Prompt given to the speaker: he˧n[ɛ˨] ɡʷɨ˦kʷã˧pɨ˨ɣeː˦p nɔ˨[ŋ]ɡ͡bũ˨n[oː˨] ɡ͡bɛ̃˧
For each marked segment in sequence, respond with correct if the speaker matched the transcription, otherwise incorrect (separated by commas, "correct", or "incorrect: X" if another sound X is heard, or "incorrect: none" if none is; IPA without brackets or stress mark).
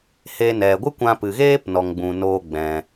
correct, correct, incorrect: oː˧